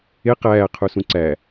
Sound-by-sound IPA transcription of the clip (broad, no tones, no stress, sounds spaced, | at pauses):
e q æː qʰ u s ũ ǀ æ